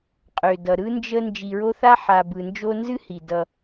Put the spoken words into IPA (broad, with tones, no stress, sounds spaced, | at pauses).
qʼ ø˩ d ʌ˩ ɾ ɯ˥ n d͡ʒ ə˦ n d͡ʒ i˨ ɹ o˦ θ a˥ ħ a˨ b ɯ˨ n d͡ʒ o˦ n z ɨ˥ h i˩ d ʌ˨